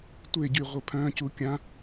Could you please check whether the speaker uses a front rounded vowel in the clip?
yes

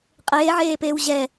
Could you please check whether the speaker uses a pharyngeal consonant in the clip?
yes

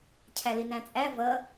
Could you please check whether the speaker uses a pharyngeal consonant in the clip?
no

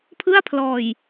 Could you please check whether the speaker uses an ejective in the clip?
no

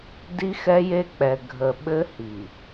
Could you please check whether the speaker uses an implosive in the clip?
yes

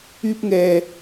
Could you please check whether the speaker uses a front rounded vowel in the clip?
yes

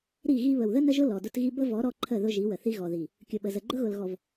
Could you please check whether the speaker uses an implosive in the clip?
yes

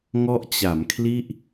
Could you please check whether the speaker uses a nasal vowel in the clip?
no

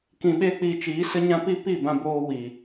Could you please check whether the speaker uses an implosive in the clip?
yes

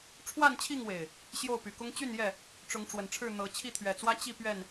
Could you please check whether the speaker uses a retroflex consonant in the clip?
yes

